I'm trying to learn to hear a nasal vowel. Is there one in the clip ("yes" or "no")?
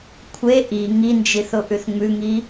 no